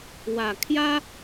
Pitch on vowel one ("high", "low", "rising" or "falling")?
low